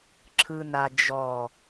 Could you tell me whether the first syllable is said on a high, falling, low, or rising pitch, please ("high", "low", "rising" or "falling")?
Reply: low